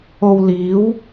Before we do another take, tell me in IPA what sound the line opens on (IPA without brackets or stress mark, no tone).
o